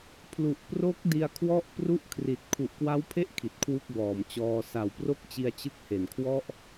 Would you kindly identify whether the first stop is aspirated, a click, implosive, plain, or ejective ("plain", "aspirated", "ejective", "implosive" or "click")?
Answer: aspirated